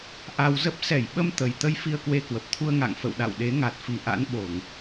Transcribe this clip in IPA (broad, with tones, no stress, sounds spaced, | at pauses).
ʔ a˧ w z ə˦˥ p̚ s ɛ˧˩ j ɓ ə˧ m t̪ ə˨˩ j t̪ ə˧ j f i˧ ə̯ k w e˧ k w ə˨˩ p̚ t̪ʰ u˧ ə̯ ŋ a̰˧˨ ŋ f ə̰˧˨ w ɗ a̰˧˨ w ɗ e˨˦ ŋ a˨˩ t̚ f i˨˩ ʔ a̰˧˥ n ɓ o˧˩˨ ŋ